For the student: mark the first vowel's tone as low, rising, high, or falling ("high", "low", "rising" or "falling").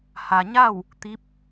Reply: low